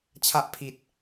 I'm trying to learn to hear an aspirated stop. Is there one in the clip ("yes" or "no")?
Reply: yes